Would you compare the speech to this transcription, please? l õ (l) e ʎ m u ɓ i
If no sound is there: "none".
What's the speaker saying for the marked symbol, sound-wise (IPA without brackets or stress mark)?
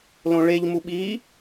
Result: ɭ